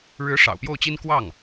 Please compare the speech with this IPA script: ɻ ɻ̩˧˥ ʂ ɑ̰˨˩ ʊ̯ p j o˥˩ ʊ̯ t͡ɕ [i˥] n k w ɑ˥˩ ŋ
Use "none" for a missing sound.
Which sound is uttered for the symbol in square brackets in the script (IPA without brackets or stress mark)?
i˥